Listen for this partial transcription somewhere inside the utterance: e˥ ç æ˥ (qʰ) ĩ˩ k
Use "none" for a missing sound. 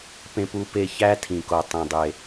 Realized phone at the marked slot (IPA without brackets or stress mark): tʰ